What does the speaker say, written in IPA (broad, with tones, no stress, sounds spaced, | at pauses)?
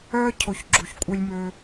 œː˦ cʰ o˨ ç ɡ͡ǁ u˨ ç kʷʼ œ˦ lʲ m øː˦